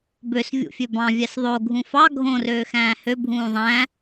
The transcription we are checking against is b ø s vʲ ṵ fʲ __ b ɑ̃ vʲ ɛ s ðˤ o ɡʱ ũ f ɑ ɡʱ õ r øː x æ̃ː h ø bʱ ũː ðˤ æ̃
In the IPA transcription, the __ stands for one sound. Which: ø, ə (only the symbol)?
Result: ø